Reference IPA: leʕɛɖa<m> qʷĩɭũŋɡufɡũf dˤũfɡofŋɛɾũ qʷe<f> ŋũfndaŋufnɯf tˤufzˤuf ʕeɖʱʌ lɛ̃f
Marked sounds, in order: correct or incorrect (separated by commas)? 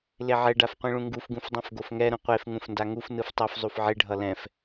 incorrect, correct